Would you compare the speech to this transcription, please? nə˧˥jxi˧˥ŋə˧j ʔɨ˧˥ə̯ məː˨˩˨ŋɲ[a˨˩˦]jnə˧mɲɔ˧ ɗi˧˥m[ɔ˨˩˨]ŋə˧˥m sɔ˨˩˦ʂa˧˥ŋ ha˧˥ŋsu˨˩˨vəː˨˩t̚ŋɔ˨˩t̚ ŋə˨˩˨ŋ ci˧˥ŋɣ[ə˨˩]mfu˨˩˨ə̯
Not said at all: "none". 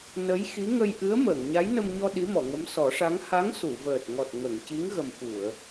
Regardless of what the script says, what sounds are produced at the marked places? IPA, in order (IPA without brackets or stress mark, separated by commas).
a˧˥, ɔ˨˩˨, ə˨˩